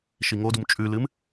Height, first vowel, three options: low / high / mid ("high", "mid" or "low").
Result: high